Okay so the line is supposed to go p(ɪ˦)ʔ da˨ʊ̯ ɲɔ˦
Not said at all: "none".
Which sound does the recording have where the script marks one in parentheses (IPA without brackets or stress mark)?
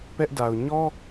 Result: ɛ˦